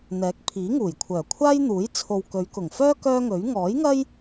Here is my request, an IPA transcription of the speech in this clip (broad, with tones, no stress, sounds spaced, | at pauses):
n̪ ɛː˨˥ k̚ pʰ iː˨˥ ŋ uː˨˩ j kʷʰ œː˨˩ kʷʰ aː˥ j n̪ uː˨˥ j t͡sʰ o˨ w k ɵ˨˧ ɥ k ʊ˨˩ ŋ f œː˥ k œː˥ ŋ ɵ˨˥ ɥ ŋ ɔː˨˥ j ŋ ɐ˥ j